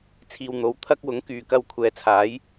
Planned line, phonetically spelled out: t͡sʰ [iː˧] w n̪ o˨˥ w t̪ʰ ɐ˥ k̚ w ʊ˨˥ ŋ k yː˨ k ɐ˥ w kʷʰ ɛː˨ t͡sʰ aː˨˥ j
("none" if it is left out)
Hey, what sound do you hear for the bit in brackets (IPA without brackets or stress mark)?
iː˧